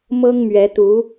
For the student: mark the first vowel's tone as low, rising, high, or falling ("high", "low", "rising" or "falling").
high